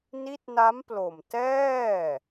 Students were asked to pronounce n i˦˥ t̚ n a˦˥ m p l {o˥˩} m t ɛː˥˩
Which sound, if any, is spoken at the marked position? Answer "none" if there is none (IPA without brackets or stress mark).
o˨˩